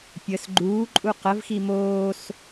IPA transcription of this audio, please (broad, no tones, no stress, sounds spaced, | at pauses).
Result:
pʲ ə s ɡ͡ǃ uː ǃʼ u q ə v x i m oː s